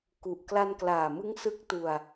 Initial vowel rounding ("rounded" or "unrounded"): rounded